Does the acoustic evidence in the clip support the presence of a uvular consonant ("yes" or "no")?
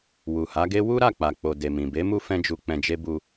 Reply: no